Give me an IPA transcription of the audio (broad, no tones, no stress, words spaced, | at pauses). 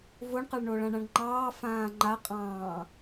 voɳqɑɭ ɳoɭãɳãɳŋ͡ǃɑː fãːŋ͡ǃaqʼɑ̃ː